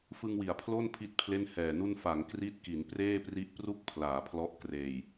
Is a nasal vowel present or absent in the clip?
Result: absent